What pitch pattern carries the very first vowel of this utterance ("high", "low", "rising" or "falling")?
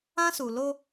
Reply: high